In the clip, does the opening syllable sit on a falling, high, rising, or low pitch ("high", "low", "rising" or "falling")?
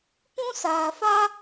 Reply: high